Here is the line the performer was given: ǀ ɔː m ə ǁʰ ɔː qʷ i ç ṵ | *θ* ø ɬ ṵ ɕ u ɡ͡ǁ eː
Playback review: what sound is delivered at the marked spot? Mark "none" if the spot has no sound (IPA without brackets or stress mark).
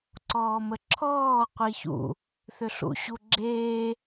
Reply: θ